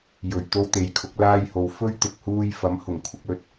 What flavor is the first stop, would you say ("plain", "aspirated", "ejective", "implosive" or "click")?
plain